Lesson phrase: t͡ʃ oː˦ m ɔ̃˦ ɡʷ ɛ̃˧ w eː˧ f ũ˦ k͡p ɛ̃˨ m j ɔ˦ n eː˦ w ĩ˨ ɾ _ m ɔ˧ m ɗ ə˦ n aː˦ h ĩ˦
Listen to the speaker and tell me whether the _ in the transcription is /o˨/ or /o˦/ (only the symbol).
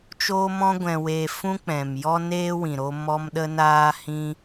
o˦